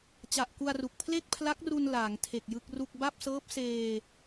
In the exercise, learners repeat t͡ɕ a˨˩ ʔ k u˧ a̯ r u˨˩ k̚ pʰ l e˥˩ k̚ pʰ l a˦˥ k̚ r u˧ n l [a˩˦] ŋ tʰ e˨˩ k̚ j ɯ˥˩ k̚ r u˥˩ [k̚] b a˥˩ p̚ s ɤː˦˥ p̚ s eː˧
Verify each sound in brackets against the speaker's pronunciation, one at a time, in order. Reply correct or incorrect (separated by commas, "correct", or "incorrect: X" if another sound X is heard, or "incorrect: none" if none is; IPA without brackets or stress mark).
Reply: incorrect: aː˩˦, correct